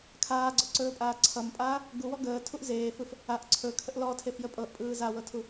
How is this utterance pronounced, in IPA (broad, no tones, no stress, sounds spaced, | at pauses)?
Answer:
kʰ aː ɡ͡ǀ ɔ ǀ ɵː pʼ aː ǀʰ ʌ m pʼ aː | ɡ u w ɔ ɡ əː tʰ u ʔ z eː f ɯ f | a ʔ ǀʰ ɵ kʰ ə ʔ l ɔ tʰ e f j ə pʼ ɤ ʔ pʼ ɯː z a w ɤ tʰ u